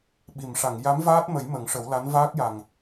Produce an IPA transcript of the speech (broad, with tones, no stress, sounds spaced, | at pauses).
ɓ i˨˩˨ m ʂ a˨˩˨ ŋ j a˧˥ m v aː˦˥ t̚ m ə˨˩˦ j m ə˨˩˦ ŋ ʂ ə˨˩˦ w l a˧˥ n v aː˦˥ k̚ j a˨˩ ŋ